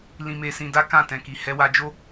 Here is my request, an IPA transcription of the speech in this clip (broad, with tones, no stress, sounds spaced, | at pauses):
l ĩ˧ m e˧ s ĩ˧ d a˦ k ã˦˨ t ɛ̃˨ k i˨ h ɛ˨˦ w a˧ d͡ʒ o˦